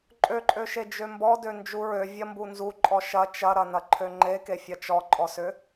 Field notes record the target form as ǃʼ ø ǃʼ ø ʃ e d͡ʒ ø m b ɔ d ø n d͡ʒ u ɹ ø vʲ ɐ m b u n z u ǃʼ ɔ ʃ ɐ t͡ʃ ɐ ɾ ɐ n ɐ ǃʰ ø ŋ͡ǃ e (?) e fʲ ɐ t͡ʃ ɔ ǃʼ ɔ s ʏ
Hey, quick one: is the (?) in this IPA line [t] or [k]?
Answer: k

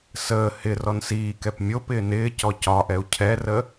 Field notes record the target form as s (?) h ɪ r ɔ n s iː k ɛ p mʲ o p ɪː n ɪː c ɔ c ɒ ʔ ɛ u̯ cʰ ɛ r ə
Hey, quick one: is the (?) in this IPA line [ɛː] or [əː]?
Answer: əː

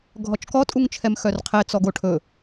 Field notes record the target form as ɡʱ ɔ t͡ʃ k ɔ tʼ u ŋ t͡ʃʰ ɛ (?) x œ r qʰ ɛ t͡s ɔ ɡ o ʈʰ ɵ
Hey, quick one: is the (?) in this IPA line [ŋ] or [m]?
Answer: m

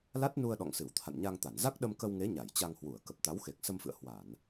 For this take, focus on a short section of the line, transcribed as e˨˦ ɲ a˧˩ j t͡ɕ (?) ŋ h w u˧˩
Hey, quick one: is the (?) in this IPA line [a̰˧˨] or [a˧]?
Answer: a˧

